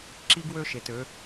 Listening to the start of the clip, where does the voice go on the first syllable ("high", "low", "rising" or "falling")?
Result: high